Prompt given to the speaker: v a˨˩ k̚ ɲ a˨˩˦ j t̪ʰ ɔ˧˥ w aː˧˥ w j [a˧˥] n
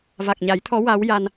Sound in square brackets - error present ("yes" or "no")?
yes